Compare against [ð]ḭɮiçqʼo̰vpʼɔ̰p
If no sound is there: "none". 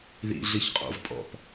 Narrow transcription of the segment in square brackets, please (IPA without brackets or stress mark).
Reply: ð